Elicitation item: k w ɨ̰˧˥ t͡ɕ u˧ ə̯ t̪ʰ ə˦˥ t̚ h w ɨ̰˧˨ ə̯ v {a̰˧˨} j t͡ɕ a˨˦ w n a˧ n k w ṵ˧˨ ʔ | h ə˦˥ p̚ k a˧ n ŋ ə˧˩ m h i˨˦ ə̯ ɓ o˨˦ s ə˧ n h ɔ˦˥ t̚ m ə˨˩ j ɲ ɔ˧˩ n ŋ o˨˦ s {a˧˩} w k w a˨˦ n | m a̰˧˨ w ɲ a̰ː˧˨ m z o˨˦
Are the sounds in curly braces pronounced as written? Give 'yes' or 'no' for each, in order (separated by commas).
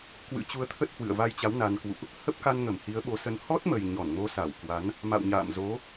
no, yes